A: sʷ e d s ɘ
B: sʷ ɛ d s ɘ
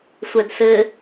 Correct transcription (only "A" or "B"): B